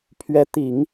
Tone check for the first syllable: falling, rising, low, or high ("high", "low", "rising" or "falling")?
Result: rising